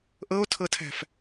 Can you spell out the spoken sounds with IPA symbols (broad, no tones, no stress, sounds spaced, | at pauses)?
ʔ ɤ o̯ tʰ ɤ tʰ æ̤ f